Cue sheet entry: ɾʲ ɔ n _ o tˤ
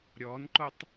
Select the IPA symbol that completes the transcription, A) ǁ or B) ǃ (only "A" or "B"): B